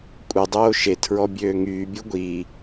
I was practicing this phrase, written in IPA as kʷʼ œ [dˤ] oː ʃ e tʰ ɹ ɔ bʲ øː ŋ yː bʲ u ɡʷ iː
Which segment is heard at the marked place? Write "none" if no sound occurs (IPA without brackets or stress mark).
dˤ